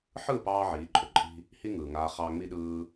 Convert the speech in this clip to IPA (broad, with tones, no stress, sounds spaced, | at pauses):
ħ ɯː˦˨ p ɑː˧ ʕ iː˨˦ ǃʼ ø˨ ǃʼ i̤˦ | h i˦ ŋ ɯː˨ ŋ aː˧ χ ɑː˧ ŋ͡m i˧ ɗ ɯː˧